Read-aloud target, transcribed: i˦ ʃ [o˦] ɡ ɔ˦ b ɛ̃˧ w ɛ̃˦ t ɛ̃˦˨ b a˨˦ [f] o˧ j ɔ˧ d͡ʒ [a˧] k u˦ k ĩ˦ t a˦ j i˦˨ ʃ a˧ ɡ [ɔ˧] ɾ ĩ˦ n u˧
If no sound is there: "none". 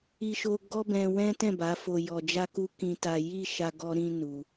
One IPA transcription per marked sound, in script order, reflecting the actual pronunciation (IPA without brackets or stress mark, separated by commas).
o˦, f, a˦, ɔ˦